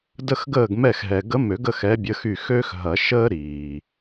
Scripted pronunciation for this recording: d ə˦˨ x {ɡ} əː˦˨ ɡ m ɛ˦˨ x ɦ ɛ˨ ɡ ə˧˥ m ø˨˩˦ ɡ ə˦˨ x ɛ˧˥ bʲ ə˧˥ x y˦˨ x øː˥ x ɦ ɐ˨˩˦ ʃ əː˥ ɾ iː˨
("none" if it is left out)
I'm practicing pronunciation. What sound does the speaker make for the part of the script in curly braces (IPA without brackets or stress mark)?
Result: ɡ